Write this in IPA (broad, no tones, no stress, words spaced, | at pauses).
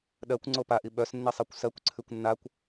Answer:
ɗɜkʷŋ͡ǀo paʔi ɓœsnːisˤɜkʷ sɜkʷǀʰʉkʷ nːakʷ